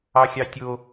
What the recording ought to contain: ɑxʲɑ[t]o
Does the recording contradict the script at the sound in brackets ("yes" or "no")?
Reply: yes